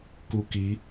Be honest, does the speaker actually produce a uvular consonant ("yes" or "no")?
no